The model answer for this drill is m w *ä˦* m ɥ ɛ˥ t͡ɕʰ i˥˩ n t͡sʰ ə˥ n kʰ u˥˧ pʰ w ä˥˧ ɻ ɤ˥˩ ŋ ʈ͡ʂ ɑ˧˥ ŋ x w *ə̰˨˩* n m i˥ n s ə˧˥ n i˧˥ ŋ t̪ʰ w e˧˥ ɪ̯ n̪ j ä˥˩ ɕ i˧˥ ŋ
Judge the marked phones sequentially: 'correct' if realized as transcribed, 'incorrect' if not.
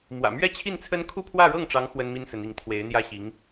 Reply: incorrect: ä̰˨˩, incorrect: ə˥

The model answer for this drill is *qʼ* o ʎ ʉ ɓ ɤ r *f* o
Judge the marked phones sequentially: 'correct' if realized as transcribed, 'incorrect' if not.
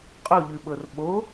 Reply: correct, incorrect: ɓ

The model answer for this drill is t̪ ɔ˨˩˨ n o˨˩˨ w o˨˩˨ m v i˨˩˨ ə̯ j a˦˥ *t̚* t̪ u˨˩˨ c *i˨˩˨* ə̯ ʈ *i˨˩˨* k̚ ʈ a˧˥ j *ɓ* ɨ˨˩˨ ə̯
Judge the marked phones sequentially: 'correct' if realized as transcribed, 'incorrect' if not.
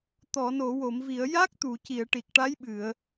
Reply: incorrect: k̚, correct, incorrect: i˨˩, correct

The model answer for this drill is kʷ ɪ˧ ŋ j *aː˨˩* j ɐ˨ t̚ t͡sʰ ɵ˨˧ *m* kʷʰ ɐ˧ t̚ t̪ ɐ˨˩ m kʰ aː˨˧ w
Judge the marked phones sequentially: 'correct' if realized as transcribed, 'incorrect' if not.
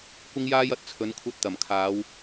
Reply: incorrect: aː˧, incorrect: n

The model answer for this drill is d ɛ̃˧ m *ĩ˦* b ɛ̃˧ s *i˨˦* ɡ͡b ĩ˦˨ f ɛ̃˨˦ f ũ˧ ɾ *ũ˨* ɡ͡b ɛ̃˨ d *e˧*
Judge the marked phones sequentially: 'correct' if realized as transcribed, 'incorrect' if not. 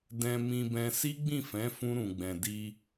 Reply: incorrect: ĩ˧, incorrect: i˦, correct, incorrect: i˧

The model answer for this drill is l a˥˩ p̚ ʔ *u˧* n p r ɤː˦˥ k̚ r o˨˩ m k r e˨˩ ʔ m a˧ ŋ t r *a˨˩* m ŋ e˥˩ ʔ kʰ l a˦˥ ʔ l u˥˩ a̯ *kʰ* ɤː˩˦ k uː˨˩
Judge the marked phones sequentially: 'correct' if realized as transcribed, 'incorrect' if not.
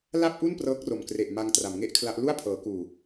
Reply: incorrect: u˥˩, incorrect: a˩˦, incorrect: pʰ

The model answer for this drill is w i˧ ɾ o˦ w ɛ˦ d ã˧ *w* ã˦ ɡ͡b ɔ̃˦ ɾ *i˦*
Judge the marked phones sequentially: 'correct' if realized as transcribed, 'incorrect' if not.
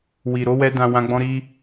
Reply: correct, correct

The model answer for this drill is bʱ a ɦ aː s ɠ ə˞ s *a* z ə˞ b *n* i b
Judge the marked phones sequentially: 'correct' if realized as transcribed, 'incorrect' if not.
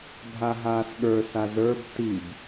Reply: correct, incorrect: t

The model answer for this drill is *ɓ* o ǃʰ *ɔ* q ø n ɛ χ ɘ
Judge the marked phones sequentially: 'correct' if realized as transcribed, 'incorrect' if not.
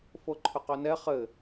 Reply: incorrect: f, incorrect: ʊ

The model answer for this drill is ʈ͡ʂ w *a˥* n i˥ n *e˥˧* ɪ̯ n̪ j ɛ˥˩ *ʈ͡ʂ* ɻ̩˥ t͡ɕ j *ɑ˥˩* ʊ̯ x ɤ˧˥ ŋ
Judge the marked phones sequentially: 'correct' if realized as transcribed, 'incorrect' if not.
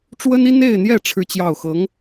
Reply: incorrect: ə˥, correct, incorrect: ʈ͡ʂʰ, correct

